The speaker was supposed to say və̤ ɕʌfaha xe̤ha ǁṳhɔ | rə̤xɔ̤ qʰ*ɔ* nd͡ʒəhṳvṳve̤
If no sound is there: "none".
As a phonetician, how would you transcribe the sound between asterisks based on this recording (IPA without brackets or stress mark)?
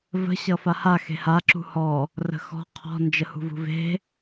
ɔ̤